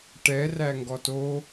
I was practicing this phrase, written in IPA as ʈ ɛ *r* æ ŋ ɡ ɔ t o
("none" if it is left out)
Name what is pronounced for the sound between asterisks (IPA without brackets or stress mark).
r